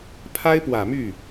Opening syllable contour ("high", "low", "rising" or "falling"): high